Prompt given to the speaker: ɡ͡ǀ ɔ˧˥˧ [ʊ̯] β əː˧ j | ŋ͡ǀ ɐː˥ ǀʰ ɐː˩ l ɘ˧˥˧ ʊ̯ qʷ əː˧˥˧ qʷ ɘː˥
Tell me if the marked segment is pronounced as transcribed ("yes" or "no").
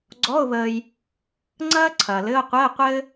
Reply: yes